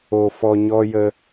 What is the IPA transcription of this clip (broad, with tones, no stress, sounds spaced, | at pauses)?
o˨ f ɔ˨ ɲ ɔ˧ j ə˧